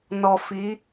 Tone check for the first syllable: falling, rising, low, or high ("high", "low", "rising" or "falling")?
low